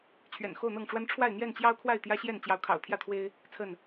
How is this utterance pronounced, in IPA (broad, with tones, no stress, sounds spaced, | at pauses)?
t͡ɕʰ ɥ ɛ̰˨˩ n x o˥˨ ʊ̯ n̪ ɤ˥˨ ŋ ʈ͡ʂ w a˦ n ʈ͡ʂʰ w a˥˨ ɪ̯ n̪ j ɛ˥˨ n t͡ɕ j ɑ˦ ʊ̯ kʰ w a˥˨ ɪ̯ t̪ j ä˦ ɕ j ɛ˥˨ n t͡ɕ j ɑ˨˦ ʊ̯ kʰ ɑ̰˨˩ ʊ̯ t̪ʰ j ä˥˨ t̪ʰ w e˦ ɪ̯ | t͡sʰ ə˥˨ n